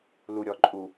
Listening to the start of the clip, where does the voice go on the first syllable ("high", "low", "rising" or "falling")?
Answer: low